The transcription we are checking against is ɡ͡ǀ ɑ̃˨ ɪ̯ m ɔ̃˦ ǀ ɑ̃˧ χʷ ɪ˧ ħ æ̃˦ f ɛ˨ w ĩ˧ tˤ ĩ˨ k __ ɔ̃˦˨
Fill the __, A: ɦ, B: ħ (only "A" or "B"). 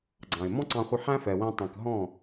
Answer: A